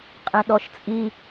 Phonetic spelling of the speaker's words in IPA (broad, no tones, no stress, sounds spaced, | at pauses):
qʼ ẽ ɗ ɔ ʃ t͡sʼ i